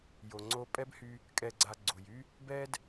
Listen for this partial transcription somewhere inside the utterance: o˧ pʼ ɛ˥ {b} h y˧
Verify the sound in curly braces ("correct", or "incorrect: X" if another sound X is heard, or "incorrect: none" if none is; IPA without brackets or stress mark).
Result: correct